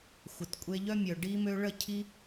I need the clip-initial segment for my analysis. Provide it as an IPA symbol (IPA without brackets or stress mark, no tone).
xʷ